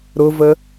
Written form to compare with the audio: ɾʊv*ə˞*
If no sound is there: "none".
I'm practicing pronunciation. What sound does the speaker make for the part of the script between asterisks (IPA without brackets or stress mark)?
ə